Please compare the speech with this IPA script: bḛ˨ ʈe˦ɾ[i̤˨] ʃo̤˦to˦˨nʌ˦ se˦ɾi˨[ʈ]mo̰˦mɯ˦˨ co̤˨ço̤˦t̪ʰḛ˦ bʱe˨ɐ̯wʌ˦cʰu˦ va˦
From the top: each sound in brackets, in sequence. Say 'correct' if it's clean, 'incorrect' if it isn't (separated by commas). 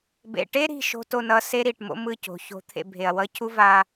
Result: correct, correct